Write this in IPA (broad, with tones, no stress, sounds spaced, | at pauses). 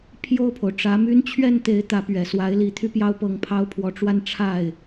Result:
pʰ j o˥˩ ʊ̯ pʰ o˩ ʊ̯ ʈ͡ʂ ä˧˥ m y˥ n t͡ɕʰ ɥ ɛ˥˩ n t̪ e˧˥ ɪ̯ t̪ ä˧˥ p ɥ ɛ˨˩ s w a˧˥ ɪ̯ l i˧˥ t̪ʰ y˥ p j ɑ˥ ʊ̯ p ɤ˧˥ ŋ pʰ ɑ˥ ʊ̯ pʰ w ɔ˧˥ ʈ͡ʂ w a˥˧ n ʈ͡ʂʰ a˥˩ ɪ̯